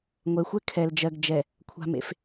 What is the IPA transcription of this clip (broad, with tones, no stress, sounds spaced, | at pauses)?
ŋʷ ɛ˨ xʷ ɛ˦ kʰ ɛ˨ l d͡ʒ ɜ˨ ɡ d͡ʒ ɛ˨ | kʷʰ a̤˨ m ḛ˨ f